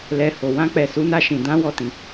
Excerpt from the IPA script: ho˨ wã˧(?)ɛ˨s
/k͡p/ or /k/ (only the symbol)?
k͡p